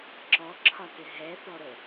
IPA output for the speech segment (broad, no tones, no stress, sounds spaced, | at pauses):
ǁ ɔ ǁʰ ɒ t ɪ ɦ ɛ θ ɔ ɾ ə